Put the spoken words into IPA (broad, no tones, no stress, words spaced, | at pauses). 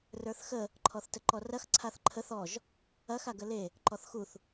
rə˞θxə | ǃʰɔθtəǃɔrɐx ǀʰaθǃʰəθ ɔʒ | ɐx aɡəle | ǃɔθxuθ